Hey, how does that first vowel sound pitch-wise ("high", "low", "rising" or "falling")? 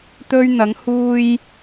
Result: high